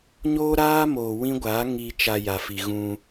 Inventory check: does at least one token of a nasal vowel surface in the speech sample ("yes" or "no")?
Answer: yes